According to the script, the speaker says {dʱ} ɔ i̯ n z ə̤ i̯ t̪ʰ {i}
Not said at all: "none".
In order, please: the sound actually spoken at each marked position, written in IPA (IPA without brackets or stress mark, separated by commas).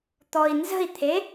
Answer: t̪, e